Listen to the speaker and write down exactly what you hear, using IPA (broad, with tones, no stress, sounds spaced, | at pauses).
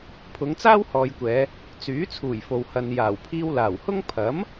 pʰ ʊ˨˧ ŋ t͡s aː˥ w h ɔː˨ j kʷ ɛː˨˧ | t͡s yː˨˥ t͡sʰ uː˨˩ j f o˨ w h ɐ˨ n j aː˨˩ w pʰ iː˧ w l aː˨˩ w h ʊ˥ ŋ pʰ ɐ˨˥ m